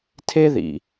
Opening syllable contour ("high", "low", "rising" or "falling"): high